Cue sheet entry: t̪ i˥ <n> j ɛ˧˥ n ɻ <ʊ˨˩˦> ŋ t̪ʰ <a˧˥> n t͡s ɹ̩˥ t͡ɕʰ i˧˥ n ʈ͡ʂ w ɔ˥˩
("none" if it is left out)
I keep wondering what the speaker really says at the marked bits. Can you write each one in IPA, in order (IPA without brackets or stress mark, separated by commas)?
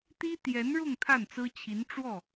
t̪, ʊ˥˧, a˥˩